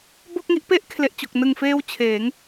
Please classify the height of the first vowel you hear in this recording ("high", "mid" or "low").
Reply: mid